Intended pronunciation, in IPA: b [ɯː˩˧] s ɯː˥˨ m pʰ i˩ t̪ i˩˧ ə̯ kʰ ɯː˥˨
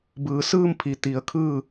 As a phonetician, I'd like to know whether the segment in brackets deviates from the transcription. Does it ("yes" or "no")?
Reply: no